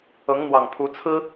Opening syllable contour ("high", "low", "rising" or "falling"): rising